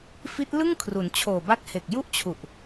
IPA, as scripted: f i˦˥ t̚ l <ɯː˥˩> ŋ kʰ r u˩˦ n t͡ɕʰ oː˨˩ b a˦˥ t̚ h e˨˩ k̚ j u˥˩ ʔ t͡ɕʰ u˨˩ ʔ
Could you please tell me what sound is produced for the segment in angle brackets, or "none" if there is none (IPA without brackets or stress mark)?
ɯ˥˩